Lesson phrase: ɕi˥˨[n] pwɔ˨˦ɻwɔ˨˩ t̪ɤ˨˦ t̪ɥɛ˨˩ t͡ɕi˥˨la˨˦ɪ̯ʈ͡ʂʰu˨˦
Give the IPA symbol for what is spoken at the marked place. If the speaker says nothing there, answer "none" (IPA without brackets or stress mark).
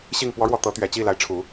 ŋ